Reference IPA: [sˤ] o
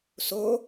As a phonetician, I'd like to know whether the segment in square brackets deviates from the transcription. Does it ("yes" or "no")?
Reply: yes